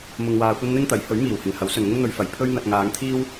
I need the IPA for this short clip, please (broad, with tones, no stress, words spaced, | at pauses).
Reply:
mʊ˧ŋwaː˧kʷɐ˥n n̪ɪ˥ŋt̪ɐ˨˥j hɵ˨˥ɥmiː˨˩whɪ˨˩ŋ hɐ˨˥wsɵ˨nŋʊ˥ŋn̪ɵ˧ɥ fɐ˨˩j pʰɵ˥ɥ n̪ɐ˧t̚ ŋaː˨˧ŋt̪ʰiː˥w